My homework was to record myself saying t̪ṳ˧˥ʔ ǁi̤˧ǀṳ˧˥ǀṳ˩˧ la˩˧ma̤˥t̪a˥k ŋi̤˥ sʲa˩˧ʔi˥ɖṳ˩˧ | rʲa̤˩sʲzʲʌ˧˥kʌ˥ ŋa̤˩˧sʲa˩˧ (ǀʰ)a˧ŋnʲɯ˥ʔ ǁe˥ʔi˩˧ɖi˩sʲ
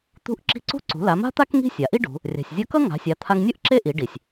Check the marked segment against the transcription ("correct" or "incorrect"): incorrect